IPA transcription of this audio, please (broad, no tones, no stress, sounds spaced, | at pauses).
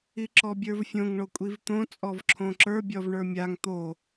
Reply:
i ǁ ɔ bʲ ə˞ v fʲ õ ŋ ɳ o kʷʼ i v t̪ õ t͡sʼ ɔ v ǁʰ õ ǁ ə˞ bʲ ɔ v ɳ ə˞ mʲ a ŋ t̪ o